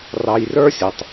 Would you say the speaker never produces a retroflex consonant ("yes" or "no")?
yes